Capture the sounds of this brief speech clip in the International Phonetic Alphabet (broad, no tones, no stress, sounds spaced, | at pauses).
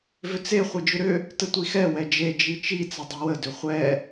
v ʏ t͡s e χʷ i d͡ʒ ʏ ɾ ʏ | t ə tʷ i x ɛ w ɛ d͡ʒ e d͡ʒ i t͡ʃ i t͡s ə dˤ i w ə d ʏ χʷ ɛ